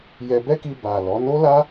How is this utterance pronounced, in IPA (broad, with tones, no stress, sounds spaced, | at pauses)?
j ɛ˧ b ɛ˦ k i˧ b a˨ l ɔ˨˦ n o˦ l a˦